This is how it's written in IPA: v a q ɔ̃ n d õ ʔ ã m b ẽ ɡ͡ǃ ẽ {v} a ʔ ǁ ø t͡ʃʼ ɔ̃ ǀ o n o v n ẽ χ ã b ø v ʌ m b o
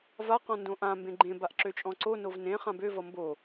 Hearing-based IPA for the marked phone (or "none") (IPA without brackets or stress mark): b